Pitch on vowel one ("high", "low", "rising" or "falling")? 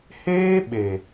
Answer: high